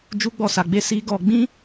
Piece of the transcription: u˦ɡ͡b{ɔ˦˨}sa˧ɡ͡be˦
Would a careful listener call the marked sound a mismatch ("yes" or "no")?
no